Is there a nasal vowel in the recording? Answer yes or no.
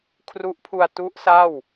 no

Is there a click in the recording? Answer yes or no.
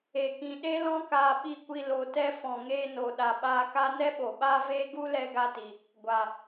no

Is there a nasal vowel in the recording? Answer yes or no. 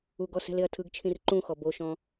yes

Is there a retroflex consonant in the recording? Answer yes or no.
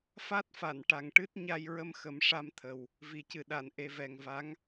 yes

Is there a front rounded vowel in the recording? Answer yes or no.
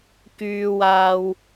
yes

